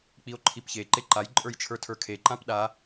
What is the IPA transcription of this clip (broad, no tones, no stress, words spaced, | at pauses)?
k͡pio̯ǃʰipçe ǃeǃaj ǃʼə˞jt͡ʃʰə˞tʰə˞kʰe ǃãpɗa